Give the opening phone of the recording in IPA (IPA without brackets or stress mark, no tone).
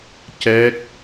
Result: c